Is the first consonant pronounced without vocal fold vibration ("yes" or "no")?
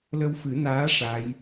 no